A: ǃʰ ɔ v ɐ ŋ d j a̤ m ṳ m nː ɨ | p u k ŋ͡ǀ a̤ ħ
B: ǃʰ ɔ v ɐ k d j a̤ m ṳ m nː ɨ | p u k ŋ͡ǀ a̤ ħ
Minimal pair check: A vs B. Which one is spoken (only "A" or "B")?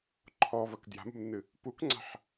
B